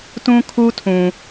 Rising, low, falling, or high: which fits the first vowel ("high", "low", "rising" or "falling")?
high